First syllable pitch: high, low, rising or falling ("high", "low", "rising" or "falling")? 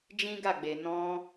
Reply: high